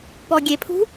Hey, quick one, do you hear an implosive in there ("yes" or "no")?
no